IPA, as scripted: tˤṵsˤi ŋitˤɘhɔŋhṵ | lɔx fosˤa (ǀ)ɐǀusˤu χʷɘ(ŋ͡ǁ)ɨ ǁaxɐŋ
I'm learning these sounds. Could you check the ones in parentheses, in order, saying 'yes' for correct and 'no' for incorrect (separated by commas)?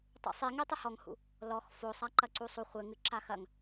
no, no